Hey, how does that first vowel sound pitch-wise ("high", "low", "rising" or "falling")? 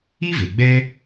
high